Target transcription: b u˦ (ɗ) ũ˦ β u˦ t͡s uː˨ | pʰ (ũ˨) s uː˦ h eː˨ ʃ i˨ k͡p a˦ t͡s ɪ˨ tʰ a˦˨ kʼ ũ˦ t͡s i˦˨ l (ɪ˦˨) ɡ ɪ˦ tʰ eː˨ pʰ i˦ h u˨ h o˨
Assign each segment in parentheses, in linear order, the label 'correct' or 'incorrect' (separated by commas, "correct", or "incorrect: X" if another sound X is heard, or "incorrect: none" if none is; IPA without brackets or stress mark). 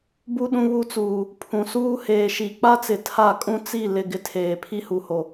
correct, correct, correct